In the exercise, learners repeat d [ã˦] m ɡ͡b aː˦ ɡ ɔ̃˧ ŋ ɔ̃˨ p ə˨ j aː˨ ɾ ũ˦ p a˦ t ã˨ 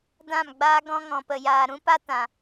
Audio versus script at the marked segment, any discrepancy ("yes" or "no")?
yes